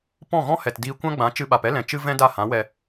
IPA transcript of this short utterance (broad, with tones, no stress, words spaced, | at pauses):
pɔ̃˦˨ɣɔ̃˦hɛ˨tdiː˧ kʷã˦ɡ͡bã˨˦ t͡ʃɨ˧ɓa˨pɛ˦lɛ̃˨ t͡ʃɨ˦ vɛ̃˦da˦˨ hã˨˦wɛ˧